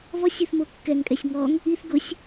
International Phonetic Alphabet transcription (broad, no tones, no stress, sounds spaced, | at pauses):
v ɔ sʲ ʊ θ m o kː ɛ ŋ kʼ ɛ sʲ ŋ ɔ ŋ | i θ ɡ ʊ sʲ